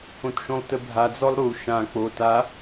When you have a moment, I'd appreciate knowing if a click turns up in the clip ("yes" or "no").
no